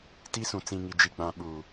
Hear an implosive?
yes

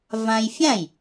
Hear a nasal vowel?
yes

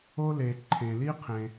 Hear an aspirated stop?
yes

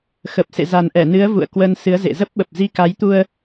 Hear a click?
no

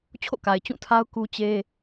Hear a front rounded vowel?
no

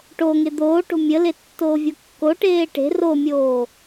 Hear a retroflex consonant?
yes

